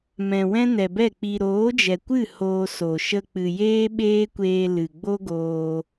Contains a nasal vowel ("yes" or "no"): yes